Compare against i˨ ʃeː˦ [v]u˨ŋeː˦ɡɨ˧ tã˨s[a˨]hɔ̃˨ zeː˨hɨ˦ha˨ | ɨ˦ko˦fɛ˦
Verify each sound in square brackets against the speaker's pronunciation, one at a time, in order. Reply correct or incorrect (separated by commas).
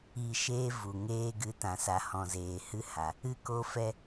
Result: correct, correct